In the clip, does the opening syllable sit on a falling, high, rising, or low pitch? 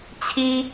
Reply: high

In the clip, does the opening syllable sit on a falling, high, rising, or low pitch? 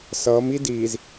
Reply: rising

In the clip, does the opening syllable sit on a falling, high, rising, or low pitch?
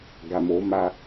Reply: low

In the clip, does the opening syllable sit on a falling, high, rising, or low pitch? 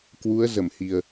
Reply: rising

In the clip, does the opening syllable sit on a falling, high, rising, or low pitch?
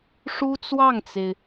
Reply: high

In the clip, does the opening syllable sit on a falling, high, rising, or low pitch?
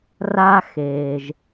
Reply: high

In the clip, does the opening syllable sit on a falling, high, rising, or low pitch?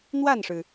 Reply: falling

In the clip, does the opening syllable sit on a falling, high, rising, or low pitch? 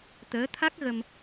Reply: rising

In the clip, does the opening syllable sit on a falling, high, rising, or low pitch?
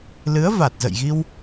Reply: rising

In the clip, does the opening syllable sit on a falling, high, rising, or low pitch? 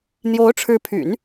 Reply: rising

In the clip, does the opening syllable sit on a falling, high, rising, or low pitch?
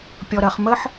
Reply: low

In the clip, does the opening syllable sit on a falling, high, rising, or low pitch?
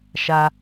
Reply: high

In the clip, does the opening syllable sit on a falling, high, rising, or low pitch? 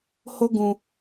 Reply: high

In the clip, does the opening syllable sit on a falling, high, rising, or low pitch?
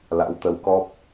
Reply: rising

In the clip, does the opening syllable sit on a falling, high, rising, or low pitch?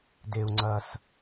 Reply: low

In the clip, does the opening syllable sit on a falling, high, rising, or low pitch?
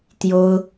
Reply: high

